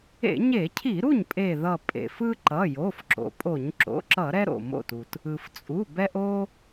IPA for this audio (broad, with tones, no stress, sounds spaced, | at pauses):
ḛ˧˩˧ ɲ e˧˩˧ cʰ i˧˩˧ ɾ u˥˩ ɲ pʼ e˧˩ ð ʌ˧˩ pʼ ḛ˩ f ɯ˦ ǃ ʌ˩˧˩ j o˩˧˩ f ǁ o̰˩ pʼ o˧˩˧ ɲ ǁ o̰˩˧˩ ǁ ʌ˧˩˧ ɾ ɛ˦ ɾ o̰˩ m o̰˧˩ t u˩ t | ɯ˩ f t͡sʼ u˩˧˩ b ɛ˦ ʔ o˦